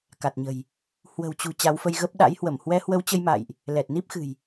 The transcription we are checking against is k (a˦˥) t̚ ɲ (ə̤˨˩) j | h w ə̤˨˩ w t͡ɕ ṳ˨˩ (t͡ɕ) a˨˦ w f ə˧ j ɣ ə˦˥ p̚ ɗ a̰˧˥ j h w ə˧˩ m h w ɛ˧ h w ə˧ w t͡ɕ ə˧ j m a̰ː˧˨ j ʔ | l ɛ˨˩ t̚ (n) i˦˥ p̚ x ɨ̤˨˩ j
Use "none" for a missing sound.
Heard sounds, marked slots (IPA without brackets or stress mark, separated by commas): a˨˩, ə̤˨˩, t͡ɕ, n